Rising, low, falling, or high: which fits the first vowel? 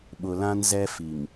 low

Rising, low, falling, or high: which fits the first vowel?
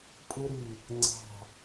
high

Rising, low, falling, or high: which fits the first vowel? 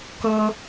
high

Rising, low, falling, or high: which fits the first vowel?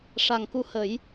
low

